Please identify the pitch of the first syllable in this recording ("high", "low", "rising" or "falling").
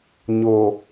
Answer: low